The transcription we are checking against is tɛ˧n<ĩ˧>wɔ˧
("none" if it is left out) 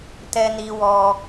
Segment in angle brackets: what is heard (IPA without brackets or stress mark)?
i˧